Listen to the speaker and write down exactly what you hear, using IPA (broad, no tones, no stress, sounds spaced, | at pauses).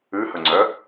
ʉ h ɵ ŋ͡ǀ œ